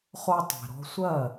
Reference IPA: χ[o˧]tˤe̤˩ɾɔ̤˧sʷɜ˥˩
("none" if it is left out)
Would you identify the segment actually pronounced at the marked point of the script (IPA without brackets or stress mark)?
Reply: o˧